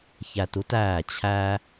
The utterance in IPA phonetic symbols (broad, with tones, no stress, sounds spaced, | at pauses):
ç æ˧ t u˥ t æː˥˩ t͡ɕʰ æː˥